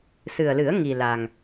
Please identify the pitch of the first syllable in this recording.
low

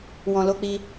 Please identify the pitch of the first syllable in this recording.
low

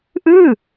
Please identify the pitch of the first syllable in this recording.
falling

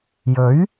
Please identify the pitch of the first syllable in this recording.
rising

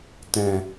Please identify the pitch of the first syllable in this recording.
low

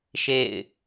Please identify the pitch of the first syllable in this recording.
falling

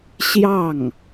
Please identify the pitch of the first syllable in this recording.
falling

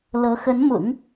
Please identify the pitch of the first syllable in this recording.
rising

